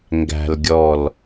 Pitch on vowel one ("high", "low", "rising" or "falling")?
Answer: low